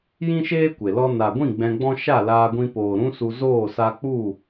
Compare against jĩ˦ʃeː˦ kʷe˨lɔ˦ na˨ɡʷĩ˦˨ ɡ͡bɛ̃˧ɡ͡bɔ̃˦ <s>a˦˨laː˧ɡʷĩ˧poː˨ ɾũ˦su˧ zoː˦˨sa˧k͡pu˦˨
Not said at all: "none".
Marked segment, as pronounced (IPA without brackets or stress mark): ʃ